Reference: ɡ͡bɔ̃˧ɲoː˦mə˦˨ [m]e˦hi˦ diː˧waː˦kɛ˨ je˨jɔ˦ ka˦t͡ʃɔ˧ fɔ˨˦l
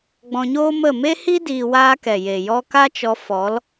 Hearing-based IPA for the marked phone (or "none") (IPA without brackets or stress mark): m